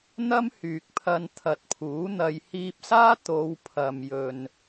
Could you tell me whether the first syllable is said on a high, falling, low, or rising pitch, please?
high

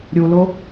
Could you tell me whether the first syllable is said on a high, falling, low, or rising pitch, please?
low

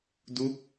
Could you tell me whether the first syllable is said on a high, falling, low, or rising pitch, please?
falling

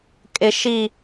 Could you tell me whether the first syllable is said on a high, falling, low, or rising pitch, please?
low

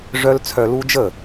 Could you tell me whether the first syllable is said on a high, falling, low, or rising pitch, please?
high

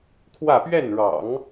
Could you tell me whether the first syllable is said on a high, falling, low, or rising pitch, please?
falling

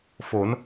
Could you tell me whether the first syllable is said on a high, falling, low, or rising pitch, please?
rising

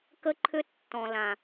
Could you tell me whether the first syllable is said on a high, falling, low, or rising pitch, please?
high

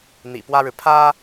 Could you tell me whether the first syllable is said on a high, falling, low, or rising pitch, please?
low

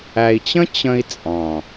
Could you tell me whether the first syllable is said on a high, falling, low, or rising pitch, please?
low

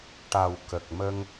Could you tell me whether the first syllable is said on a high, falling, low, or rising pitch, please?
low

